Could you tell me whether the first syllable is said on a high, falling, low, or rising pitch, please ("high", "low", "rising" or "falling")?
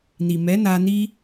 low